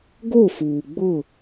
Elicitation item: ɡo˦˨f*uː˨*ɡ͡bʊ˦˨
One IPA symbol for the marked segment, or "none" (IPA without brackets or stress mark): uː˨